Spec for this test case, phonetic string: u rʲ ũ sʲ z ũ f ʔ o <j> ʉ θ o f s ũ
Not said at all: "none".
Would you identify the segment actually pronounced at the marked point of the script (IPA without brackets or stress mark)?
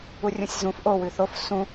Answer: w